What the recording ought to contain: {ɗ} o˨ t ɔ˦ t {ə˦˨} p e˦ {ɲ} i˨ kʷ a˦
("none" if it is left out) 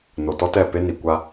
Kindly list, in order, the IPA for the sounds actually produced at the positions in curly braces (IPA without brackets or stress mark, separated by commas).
n, ɛ˦˨, n